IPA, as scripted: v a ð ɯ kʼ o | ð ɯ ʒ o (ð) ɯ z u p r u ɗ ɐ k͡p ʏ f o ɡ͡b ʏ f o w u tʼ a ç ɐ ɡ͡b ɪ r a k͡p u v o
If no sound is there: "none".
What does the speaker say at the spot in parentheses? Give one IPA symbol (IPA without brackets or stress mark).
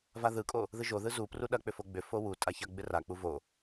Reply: ð